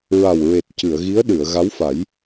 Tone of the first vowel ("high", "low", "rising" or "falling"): low